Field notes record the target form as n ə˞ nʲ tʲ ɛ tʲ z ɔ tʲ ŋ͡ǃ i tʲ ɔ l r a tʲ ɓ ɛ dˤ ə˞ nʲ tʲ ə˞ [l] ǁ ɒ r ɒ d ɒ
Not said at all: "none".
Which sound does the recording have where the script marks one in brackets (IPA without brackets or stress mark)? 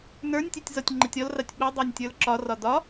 l